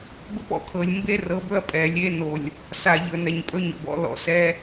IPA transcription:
bɵ˦pɔ̰˨kʰɤ˨lʲ mbe˦rɤ˨˦b ɵ˦ɐ̯pʼɛ˨lʲe˦no˨lʲ | sa˨ ʎɵ˨nɛ˨ɲpʼɵ˦ɲɔ̰˨b ɔ̰˦lɔ̰˨sɛ˦

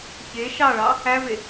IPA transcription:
çe ʃɑɭɑ | æve

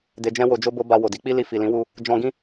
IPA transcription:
de˨d͡ʒɛ̃˧ wo˧d͡ʒo˦bo˦ ba˧ wo˨di˨˦ k͡pi˦ li˧fi˨lĩ˨˦wu˧ | d͡ʒɔ̃˧ɡĩ˦

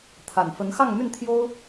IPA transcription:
t̪ʰa˨˩nfə˧˥n xɑ˥˧ŋmy˥˩nt̪ʰjo˥ʊ̯

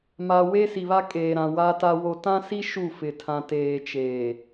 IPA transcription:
ma˨ we˦si˨βa˦kʼeː˨ ɾã˨ wa˦ta˦wo˦ tã˦si˦ ʃu˦˨fɪ˨tʰã˨ teː˨t͡ʃeː˨

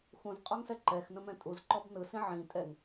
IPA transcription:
xũzqʼɔŋsɛ ǃɛxnə̃mɛ̃ tʼuzǃɔb nɯsĩ ʕĩtʼɛŋ

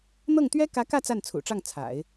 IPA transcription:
n̪ɤ˥˩ŋt̪ɥɛ˥ kä˧˥kä˥˧ t͡sa˥˩nt͡sʰṵ˨˩ʈ͡ʂɑ˥˩ŋ t͡sʰa̰˨˩˦ɪ̯

